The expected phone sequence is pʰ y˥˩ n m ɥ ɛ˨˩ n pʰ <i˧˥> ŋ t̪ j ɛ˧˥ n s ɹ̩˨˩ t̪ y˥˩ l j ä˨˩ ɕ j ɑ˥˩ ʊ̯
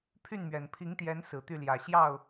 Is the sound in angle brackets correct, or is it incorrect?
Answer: correct